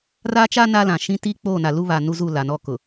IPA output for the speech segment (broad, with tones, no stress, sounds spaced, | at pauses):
r a˦ t͡ʃ a˦ n a˦ l ã˨ ʃ ĩ˦ t i˦ k͡p oː˦˨ n a˨ l u˦ β a˨ n u˦ z u˦˨ l a˨ n ɔ˦˨ k ʊ˨